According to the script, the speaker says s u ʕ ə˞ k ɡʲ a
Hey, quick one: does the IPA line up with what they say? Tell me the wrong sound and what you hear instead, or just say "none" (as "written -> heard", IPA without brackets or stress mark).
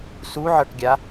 none